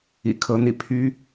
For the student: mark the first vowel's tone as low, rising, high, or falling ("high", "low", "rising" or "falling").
low